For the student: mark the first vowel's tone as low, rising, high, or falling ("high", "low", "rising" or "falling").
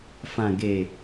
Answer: low